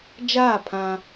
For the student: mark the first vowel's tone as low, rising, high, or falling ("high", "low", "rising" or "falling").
falling